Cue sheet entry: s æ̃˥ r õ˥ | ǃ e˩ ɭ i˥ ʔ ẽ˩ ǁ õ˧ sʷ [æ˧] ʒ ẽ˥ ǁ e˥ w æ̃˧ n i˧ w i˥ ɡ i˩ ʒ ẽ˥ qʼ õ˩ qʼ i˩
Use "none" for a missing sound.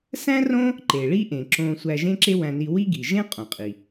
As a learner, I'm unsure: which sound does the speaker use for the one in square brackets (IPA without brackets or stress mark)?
æ˧